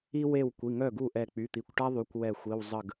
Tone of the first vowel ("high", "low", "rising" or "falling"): high